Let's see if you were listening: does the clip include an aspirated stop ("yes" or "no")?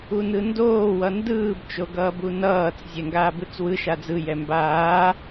no